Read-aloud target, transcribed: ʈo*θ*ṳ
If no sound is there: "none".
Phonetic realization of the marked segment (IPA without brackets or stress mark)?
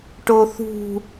θ